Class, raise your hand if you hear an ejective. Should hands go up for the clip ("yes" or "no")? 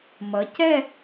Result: no